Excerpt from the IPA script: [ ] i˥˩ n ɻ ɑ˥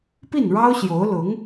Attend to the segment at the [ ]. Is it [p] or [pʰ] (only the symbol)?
p